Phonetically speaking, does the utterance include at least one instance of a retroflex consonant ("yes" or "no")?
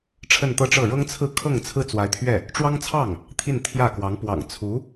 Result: yes